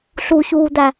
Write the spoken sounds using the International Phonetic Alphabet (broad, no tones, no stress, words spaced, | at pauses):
ɬuçuːd̪æ